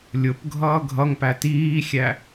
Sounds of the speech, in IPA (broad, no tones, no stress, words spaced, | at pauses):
lʲʊpɡʱʌː ɡʱʌŋpæ tiːxʲæ